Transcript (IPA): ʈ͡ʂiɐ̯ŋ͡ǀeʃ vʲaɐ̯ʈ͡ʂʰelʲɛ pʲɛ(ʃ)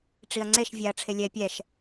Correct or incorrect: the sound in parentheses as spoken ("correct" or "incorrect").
correct